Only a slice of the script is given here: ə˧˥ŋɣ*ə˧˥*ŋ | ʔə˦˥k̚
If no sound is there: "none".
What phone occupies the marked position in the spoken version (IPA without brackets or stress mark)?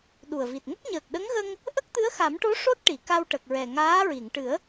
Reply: ə˧